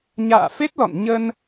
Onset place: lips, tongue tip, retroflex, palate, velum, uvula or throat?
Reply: palate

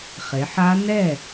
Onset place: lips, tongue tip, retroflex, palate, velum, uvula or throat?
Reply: uvula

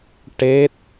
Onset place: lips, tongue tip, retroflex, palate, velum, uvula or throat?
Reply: retroflex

